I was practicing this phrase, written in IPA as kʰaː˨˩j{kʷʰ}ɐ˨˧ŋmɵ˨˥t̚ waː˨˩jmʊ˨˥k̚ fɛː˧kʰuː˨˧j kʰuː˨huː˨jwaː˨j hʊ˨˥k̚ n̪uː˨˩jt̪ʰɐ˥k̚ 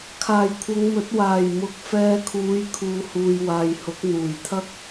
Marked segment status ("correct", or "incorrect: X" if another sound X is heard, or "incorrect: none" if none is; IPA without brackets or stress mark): correct